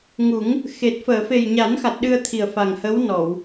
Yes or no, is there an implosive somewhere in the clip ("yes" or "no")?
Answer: yes